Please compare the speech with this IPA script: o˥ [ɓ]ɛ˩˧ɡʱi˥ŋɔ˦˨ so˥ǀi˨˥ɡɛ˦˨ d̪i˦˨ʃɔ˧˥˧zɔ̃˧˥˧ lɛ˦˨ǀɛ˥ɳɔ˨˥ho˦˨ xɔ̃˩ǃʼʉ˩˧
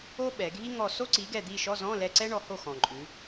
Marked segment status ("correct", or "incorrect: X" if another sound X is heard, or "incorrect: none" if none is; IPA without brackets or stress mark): correct